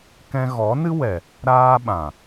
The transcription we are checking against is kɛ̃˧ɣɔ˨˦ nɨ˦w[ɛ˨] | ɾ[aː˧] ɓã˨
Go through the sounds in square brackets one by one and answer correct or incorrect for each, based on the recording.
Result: correct, correct

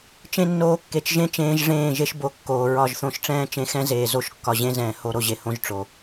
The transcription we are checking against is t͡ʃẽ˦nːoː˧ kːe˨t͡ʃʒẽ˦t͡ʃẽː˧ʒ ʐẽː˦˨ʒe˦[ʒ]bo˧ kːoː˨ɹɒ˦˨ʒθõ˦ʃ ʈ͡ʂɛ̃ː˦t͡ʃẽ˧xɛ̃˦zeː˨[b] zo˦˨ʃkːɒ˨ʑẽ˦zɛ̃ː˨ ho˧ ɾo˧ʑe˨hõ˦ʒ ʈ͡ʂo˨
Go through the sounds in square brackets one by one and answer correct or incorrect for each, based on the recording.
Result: incorrect: ʃ, incorrect: none

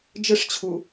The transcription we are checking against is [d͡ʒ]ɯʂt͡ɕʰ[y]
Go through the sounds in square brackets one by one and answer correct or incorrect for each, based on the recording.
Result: correct, incorrect: u

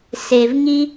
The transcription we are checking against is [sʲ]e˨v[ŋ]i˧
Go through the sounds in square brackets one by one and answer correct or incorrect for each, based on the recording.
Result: incorrect: s, correct

